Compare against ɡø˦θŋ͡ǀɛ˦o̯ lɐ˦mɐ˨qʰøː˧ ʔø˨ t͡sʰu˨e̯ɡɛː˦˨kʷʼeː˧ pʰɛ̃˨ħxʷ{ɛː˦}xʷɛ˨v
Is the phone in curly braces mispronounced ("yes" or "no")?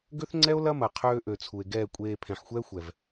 no